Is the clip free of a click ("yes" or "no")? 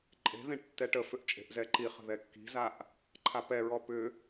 no